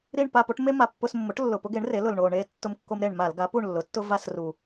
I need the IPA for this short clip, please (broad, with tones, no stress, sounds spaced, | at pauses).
ɾ i˦˨ ɳ p a˦˨ p o˦ ʈ m e˦ m a˨˩ pː ʊ˧˩˧ s mː ʊ˩˥ ʈ lː ʊ˨˩ p ʊ˦ ɡ e˩˥ ɳ r e˩˥ l ʊ˨˩ l ɳ o˨˩ ɳ e˦˨ tː ʊ˦˨ m kː o˦ m ɾ e˦˨ ɳ m a˧˩˧ l ɡ a˩˥ p u˦˨ ɳ lː ʊ˩˥ tː ʊ˦ v a˦˨ s r u˨˩